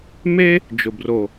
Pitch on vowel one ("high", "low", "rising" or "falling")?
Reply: high